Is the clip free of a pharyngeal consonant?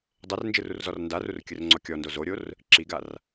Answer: yes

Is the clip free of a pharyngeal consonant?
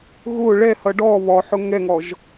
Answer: no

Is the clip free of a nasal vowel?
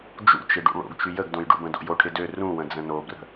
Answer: no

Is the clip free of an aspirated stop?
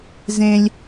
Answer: yes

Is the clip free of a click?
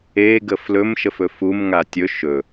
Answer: yes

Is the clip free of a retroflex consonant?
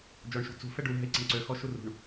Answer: no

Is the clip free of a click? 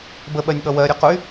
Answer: yes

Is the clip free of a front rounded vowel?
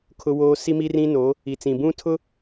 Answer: yes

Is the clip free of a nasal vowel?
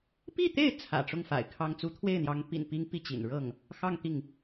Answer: yes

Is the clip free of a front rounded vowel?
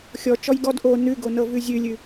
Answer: yes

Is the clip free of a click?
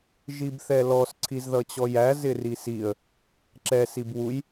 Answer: no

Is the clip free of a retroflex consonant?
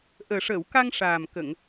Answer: no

